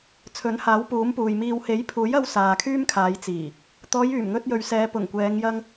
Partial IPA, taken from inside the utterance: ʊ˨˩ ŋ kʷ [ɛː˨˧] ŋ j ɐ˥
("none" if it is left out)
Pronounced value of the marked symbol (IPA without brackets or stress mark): ɛː˨˧